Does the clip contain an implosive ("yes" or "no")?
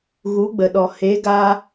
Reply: yes